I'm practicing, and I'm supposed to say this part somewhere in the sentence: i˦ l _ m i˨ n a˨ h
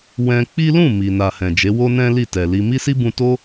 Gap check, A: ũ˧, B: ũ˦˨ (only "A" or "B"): B